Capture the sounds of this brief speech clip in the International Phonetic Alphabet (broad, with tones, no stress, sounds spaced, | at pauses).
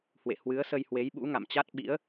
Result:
h w ḛ˧˨ h w ɨ˨˦ ə̯ s ə˧ j h w e˨˦ j ɓ ṵ˧˥ ŋ a̰˧˨ m t͡ɕ a˦˥ t̚ ɓ ḭ˧˥ ə̯